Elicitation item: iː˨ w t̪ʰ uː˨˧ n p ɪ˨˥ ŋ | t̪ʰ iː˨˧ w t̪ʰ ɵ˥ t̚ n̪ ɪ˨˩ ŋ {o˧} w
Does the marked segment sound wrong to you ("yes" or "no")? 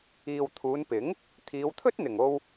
no